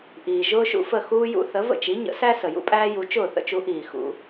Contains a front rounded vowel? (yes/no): no